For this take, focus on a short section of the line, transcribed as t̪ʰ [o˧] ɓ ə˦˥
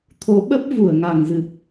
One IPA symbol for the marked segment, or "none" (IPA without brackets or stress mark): o˨˦